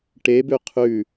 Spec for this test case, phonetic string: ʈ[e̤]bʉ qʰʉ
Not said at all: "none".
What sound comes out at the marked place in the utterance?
e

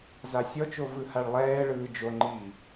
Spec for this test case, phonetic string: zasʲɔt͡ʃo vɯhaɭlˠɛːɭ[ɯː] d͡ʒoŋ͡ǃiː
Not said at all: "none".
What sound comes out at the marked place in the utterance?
ɯː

